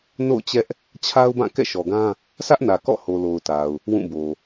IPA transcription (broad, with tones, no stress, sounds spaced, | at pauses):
n o̰˦˨ ʊ̯ t͡ɕ ɛ˦ ʔ | t͡ɕʰ a˦ ʊ̯ b ã˦˨ k ɛ̰˦˨ ʃ ɔ˨ ɡ ã˦ | sʰ ä˦ ʔ n ä˨ k ɔ̰˦˨ h o˨ l o˨ ʊ̯ t a˨ ʊ̯ | w ũ˦˨ b o˨